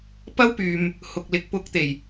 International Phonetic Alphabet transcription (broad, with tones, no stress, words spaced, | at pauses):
pɐ˥wpyː˨m | hʊ˨k̚lɪ˨˥k̚ pʊ˨˥k̚t̪e˨˩j